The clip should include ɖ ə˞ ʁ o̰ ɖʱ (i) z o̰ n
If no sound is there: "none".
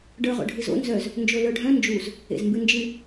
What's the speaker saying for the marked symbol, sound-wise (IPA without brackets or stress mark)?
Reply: ɨ